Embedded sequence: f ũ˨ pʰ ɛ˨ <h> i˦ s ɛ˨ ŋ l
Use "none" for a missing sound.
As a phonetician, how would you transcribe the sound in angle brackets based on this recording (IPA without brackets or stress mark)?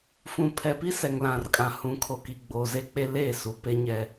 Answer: p